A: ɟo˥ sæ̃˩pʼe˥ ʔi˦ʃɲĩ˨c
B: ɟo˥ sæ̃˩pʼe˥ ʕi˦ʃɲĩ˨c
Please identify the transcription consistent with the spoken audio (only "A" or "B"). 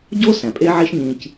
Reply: B